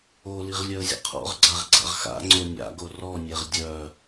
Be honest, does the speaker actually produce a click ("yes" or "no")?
yes